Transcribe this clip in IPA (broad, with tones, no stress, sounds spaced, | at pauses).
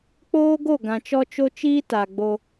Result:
k͡p oː˦ ɡ o˦˨ ɡ ã˨ t͡ʃ ɔ˦ t͡ʃ o˦ t͡ʃ iː˦ t a˨ ɡ͡b o˦